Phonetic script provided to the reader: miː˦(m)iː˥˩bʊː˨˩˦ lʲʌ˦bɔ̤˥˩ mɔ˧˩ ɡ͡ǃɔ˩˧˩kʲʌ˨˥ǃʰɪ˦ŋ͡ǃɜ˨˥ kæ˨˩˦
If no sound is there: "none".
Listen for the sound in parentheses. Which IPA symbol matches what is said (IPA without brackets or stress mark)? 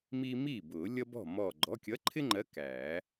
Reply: m